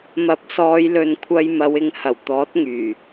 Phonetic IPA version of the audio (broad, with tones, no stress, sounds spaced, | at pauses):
m ɐ˨˥ p̚ s ɔː˨˧ j l ɵ˨ n kʷʰ ɐ˧ j m ɐ˨˧ w ɪ˨˧ ŋ h ɐ˨˩ w t̪ ɔː˨˥ t̚ ŋ yː˨˩